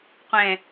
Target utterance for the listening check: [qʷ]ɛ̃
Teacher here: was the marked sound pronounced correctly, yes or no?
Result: yes